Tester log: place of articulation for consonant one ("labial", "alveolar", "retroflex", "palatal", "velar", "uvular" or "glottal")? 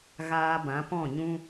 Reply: velar